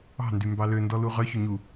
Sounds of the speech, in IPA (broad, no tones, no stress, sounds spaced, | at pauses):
ɑ̤ n d y m b ɑ l ø n d ɔ l u ʁ œ ç ɵ ɲ u